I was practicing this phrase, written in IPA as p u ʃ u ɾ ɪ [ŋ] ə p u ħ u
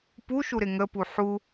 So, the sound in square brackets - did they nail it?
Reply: yes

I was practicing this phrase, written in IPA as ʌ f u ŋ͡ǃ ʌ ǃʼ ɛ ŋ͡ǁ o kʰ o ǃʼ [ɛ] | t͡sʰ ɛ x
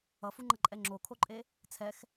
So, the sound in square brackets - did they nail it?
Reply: no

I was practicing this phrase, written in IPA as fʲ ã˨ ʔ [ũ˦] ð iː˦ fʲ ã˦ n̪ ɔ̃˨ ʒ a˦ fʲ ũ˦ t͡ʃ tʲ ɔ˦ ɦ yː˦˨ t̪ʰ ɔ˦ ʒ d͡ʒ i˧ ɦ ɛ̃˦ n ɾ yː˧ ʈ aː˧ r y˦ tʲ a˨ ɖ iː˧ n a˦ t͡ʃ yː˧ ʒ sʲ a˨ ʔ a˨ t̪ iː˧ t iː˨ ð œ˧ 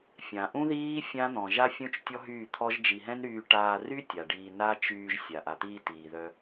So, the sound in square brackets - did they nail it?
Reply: yes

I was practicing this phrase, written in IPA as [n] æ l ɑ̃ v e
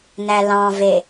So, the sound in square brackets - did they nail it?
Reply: yes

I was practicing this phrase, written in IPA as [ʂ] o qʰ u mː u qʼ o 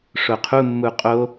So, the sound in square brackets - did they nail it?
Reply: yes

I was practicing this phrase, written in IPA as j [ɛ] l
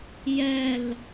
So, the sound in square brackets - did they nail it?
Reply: yes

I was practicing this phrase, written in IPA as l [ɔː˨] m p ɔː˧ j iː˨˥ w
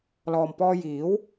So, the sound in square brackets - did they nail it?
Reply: yes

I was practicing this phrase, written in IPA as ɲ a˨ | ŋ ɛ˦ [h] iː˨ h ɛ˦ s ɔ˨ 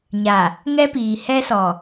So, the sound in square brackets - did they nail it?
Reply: no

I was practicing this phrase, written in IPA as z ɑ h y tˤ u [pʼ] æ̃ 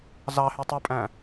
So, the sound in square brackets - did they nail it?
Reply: yes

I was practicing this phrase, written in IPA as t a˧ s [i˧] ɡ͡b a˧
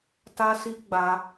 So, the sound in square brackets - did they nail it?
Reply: yes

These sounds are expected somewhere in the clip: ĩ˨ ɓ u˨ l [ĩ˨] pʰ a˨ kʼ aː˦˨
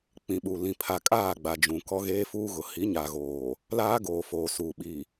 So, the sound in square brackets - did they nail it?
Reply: yes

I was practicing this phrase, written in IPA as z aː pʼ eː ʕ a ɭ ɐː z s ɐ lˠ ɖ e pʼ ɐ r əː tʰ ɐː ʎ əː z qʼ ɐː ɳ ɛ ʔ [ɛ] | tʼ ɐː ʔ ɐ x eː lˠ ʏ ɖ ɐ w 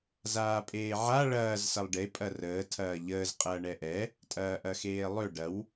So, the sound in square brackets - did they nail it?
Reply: yes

